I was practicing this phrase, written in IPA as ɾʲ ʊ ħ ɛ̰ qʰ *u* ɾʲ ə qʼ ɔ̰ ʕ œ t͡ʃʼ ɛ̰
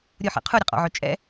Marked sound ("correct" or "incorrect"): correct